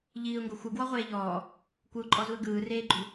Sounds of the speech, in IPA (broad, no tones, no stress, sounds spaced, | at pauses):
ʎ iː ʊ̯ ŋ ɡ o xʷ ɯ ɡ w ɔ ʁʷ eː ʎ ɔː | kʷ ɯ ʊ̯ ǃʼ ɔ z u ə̯ ɡ ɯː r eː ɡ͡ǃ ṳ